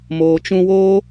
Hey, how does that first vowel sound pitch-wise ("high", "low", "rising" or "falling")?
low